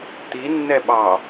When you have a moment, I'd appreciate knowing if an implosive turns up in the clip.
yes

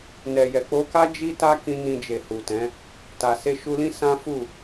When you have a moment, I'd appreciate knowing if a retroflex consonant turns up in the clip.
no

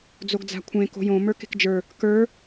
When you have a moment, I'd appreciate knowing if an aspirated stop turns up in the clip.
yes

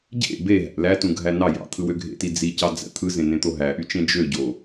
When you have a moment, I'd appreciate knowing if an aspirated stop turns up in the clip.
yes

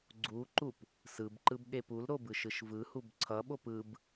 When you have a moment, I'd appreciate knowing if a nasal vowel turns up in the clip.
no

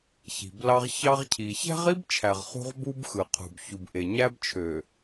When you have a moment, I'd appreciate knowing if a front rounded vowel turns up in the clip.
yes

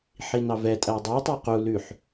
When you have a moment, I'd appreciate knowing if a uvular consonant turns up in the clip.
yes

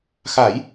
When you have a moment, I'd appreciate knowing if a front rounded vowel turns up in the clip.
no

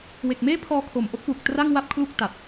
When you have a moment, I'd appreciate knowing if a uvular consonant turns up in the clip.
no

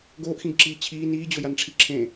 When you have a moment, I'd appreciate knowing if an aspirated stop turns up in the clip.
yes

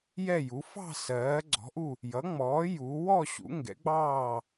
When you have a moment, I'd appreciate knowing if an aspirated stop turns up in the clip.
no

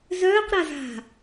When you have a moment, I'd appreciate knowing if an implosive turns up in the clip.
no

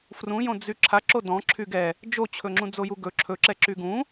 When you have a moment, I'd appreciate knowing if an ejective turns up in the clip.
no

